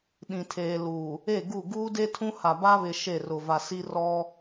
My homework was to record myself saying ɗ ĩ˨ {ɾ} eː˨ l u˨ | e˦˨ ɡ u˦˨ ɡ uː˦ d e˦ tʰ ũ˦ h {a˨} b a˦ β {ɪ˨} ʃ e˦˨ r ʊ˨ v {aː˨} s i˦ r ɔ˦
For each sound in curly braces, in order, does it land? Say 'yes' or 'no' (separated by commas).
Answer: no, yes, yes, no